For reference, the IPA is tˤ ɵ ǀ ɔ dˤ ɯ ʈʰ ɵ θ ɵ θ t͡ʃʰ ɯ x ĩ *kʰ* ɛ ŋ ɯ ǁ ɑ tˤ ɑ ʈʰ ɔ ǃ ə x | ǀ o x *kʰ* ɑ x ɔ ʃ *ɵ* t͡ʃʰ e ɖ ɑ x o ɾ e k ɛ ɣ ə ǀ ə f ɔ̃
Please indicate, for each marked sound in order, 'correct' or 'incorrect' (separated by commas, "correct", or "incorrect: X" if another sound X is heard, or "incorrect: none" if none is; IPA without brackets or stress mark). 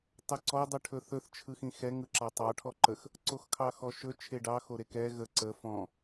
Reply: incorrect: x, correct, correct